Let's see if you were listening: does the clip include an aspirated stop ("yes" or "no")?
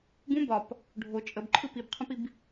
yes